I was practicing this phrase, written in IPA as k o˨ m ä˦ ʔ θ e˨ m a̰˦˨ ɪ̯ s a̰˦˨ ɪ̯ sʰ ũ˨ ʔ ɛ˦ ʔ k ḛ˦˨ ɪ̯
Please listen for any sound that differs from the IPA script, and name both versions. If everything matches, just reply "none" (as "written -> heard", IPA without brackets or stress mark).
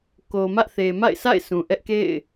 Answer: none